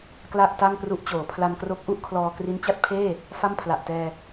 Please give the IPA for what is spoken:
k l a˥˩ ʔ t a˥˩ ŋ p r u˦˥ ʔ t͡ɕ oː˩˦ pʰ l a˧ n k r o˦˥ k̚ ʔ u˦˥ ʔ kʰ l ɔː˧ k r i˦˥ n t͡ɕ a˦˥ t̚ pʰ eː˥˩ | f a˥˩ m pʰ l a˨˩ ʔ t ɛː˧

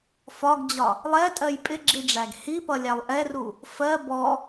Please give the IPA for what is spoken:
f ɒ ɡ d͡ʑ ɒ | lˠ ɛ tʼ ɜ j pʼ ɪ ɡ͡ǁ i ɖ͡ʐ æ ɡ h i p ʌ lʲ æ lˠ ʔ ɛ r u | f ɜ b ɔ

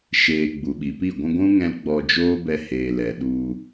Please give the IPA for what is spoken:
ʃ eː˨ ɡ͡b u˨ ɓ i˨ p i˦˨ ɡʷ ũ˧ ɡʷ ũ˦ ŋ ɛ̃˧ l ɡ͡b ɔ˧ d͡ʒ oː˦ b ɛ˧ h eː˨ l ɛ˨ ɗ u˧

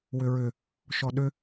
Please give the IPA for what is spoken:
w ʏ ɹ ʏ | ʃ ɔ ɗ ʏ

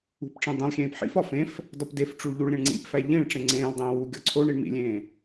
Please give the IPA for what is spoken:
ṳ p ʈ͡ʂ ẽ dˤ ẽ lˠ xʲ ẽː p ħ ḭ f ɒ f ẽ f | d ɒ p d e f ʈ͡ʂ u ɭ ʎ u ɭ ɾʲ ẽ ɳ ŋ͡ǀ ḭ p f æ ʎ ĩ ɭ ʈ͡ʂ ẽ ŋ͡ǀ ẽː lˠ dˤ ẽː w u ɡʲ ɒ ǀʰ o ɳ i ɳ m ḭ lʲ ẽː

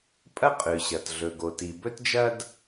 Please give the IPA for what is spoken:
pʼ ɐ˥ qʼ ʉ˩ ɕ ɐ˩ t ɮ ɵ˩ ɡ o˩ t i˩ b ɵ˥ t d͡ʒ ɐ˥ d

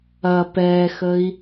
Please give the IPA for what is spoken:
ɐ p ɛ x ə i̯

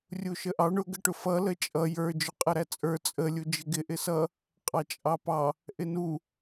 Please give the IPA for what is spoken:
rʲ u ʃ ə ʔ ɑ ɳ ʊ ɡ ə ʈ ʊ f ʌ l ə t͡ʃʼ ʌ j ə˞ d͡ʒ ʊ qʼ ə ɾ æ t͡sʼ ə˞ t͡sʼ ə lʲ u d͡ʒ ɪ ɡ ɪ ʔ ɪ s ʌ | qʼ ɑ t͡ʃʼ ɑ p ɑ | ʔ ɪ n u

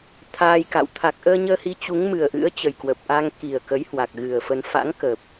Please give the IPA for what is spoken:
t̪ʰ aː˧ j k a̰˧˨ w t̪ʰ a˨˩ k̚ ʔ əː˧ ɲ əː˧ h i˨˦ t͡ɕ u˨˦ ŋ m ɨ˨˩ ə̯ ʔ ɨ̰˧˥ ə̯ t͡ɕ ə˨˩ j k w ə˨˩ p̚ ʔ a˧ ŋ k i˨˩ ə̯ k ə˨˦ j h w a˨˩ k̚ ɣ ɨ˨˩ ə̯ f ə˧ n f a̰˧˥ ŋ k ə˨˩ p̚

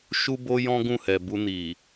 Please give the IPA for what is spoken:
ʃ u˦ b o˦ j ɔ̃˦ ɡ ũ˦˨ h ɛ˨ b u˧ n i˨

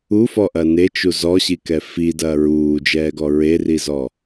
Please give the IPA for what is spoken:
u f ɔ ʔ ɐ n e t͡ʃ u z ɔ ɕ i k ɛ f i d ɐː ɹ uː d͡ʒ ɛː ɡ ɔ ɹ e r i z ɔ

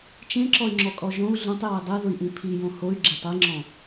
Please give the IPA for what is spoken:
t͡ʃ ẽ ǁ ɔ y̯ ŋ͡ǁ ɔ kʼ ɔ ʒ õ u̯ ɮ õ tˤ j ɔ i̯ dˤ e ð ʊ i̯ ʔ ĩ pʰ i j õ h o y̯ ɡ͡ǁ e tˤ i ŋ͡ǁ ɔ̃

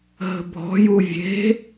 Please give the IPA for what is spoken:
ɦ ə̤ bʱ ɔ̤ j u vʲ e̤

